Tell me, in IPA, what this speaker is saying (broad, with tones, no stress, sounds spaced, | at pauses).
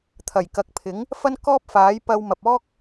t̪ʰ ɐ˨˩ j k ɐ˨ k̚ pʰ ɪ˨˥ ŋ | f ɐ˥ n k ɔː˥ p̚ f aː˨˥ j p ɐ˧ w m ɐ˨ p̚ ɔː˥ k̚